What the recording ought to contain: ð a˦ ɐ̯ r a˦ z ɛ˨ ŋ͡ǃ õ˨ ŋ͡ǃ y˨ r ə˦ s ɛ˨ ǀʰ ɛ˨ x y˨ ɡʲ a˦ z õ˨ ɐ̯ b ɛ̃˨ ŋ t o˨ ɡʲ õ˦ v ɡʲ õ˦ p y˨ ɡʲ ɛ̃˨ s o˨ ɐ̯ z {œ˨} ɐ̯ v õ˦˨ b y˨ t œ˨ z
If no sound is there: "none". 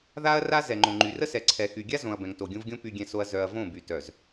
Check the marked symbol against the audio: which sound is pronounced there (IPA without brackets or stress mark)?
œ˨